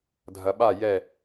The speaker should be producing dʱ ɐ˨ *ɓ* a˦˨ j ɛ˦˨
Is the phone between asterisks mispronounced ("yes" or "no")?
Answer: no